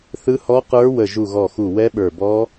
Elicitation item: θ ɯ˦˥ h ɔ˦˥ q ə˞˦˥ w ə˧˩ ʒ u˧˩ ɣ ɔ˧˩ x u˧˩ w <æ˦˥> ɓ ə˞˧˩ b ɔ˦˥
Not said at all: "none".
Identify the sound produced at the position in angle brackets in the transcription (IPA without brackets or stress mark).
ɛ˦˥